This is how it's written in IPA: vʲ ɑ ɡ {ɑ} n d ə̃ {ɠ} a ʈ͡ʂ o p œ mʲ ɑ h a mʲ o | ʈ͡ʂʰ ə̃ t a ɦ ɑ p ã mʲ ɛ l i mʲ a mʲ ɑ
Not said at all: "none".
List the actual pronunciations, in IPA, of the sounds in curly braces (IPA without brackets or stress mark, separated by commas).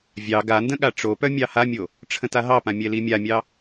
a, ɠ